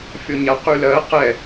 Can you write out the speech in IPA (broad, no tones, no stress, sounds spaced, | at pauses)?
fʲ ɔ ɲ a q y l ɜ q ɛ